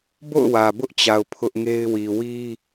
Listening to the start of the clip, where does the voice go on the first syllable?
falling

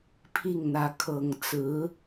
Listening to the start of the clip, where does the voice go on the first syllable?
falling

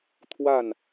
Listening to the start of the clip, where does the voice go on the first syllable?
falling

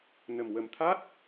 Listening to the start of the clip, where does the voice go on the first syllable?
low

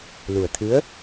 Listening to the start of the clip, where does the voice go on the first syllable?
low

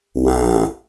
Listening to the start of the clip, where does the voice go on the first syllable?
low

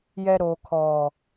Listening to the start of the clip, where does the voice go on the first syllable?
low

